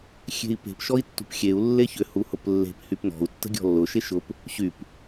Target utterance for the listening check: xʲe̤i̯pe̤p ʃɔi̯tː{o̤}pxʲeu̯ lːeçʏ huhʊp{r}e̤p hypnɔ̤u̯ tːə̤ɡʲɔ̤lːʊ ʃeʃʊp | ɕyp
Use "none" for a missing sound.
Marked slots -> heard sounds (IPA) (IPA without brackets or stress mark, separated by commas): ṳ, lː